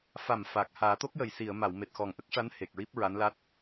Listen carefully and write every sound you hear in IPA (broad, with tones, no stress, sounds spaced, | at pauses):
f a˨˩ m f a˨˩ k̚ h aː˨˩˦ t̪ o˦˥ k̚ j ə˨˩ j s i˨˩˨ ə̯ m a˨˩˨ w m e˨˩ t̚ x ɔ˨˩ ŋ ʔ ə˦˥ k̚ ʂ a˧˥ n h e˨˩ k̚ ɹ i˦˥ p̚ ɹ a˧˥ n l a˦˥ t̚